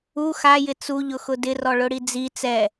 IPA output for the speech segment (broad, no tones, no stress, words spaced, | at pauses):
u xajɪ t͡suʎʊxʊ dɪrɔɭʊɽi d͡zi t͡sɛ